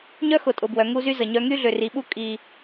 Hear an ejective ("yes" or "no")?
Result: yes